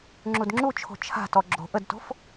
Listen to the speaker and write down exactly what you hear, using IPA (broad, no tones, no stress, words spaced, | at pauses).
ŋ͡ǁudŋ͡ǁut͡ʃʰo̤ t͡ʃʰa̤tɔ ɡ͡ǁo̤ ʔədto̤f